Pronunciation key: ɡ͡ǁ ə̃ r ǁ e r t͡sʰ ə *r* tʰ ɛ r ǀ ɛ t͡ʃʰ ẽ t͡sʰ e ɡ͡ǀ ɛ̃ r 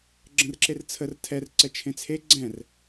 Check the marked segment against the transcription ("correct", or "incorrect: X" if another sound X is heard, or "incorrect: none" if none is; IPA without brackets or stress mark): correct